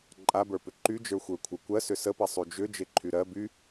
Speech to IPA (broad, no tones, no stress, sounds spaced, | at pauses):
ǃʼ a b ə˞ p ʏ ǃ y d͡ʒ ə˞ xʷ ə˞ kʷʰ ə kʷ ɜ s ʏ s ə p ɛ sˤ y d͡ʒ ʏ d͡ʒ e ǃʰ y ɾ ɜ b y